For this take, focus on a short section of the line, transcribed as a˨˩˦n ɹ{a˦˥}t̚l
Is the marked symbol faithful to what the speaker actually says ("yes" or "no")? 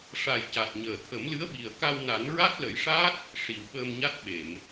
yes